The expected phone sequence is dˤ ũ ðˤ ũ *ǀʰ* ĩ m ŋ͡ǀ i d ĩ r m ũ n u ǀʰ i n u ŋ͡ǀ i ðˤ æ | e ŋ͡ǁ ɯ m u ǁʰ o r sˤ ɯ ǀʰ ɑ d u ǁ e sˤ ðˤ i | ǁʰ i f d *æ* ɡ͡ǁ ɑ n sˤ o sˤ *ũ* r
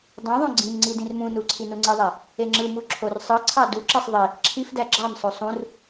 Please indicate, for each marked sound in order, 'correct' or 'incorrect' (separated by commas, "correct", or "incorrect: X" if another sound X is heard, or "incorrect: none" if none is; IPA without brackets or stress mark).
incorrect: ɡ͡ǀ, correct, correct